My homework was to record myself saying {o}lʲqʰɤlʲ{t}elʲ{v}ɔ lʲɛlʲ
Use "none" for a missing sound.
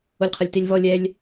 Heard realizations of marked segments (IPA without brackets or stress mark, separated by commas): o, t, v